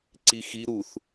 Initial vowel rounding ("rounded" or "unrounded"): unrounded